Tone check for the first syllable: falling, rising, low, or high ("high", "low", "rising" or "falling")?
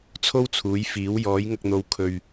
high